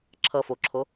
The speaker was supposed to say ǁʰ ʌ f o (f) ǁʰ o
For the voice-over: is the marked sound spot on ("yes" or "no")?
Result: no